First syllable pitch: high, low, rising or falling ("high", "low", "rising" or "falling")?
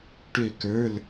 falling